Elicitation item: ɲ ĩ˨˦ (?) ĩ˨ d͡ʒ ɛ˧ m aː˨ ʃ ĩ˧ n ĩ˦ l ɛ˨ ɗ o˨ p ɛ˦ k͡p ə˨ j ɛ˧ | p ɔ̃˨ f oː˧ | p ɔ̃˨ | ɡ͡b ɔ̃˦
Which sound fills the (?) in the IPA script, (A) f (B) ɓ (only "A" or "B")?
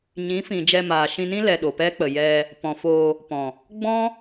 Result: A